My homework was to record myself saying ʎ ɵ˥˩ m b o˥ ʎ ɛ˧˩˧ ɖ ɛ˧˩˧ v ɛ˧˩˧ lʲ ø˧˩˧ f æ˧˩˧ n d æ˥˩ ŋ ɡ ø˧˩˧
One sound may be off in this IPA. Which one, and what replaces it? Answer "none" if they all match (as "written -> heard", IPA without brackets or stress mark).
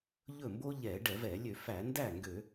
none